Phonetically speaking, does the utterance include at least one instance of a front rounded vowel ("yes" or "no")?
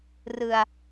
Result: no